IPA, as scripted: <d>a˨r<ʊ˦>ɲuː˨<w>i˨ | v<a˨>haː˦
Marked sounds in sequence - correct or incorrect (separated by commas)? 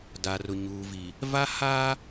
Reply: correct, incorrect, incorrect, incorrect